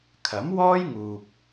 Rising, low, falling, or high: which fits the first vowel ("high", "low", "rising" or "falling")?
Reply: rising